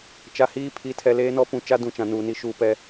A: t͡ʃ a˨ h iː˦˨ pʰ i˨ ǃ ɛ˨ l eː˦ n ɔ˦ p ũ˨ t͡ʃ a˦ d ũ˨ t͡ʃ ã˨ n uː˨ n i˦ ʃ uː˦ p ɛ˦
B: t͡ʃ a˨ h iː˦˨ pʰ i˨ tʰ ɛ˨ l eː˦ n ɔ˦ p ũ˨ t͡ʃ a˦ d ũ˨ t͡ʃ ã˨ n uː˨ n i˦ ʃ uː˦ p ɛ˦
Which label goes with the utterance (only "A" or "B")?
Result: B